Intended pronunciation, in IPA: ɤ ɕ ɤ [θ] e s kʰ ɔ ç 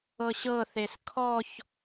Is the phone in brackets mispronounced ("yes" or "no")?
no